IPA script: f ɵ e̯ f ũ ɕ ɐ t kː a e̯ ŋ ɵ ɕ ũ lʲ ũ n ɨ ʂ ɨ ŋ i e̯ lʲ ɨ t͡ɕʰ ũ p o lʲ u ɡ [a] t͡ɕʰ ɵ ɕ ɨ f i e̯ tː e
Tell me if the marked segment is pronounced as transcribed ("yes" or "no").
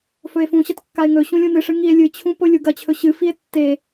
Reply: no